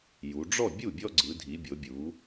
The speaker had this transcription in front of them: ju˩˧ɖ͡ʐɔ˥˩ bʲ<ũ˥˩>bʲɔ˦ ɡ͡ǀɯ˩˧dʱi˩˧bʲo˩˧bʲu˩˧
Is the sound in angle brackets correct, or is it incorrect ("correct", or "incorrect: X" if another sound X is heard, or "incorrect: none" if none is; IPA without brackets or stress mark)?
incorrect: u˥˩